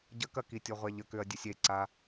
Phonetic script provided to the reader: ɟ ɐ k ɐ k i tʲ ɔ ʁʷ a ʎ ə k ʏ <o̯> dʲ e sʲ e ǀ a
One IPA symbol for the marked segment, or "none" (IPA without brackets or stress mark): ɐ̯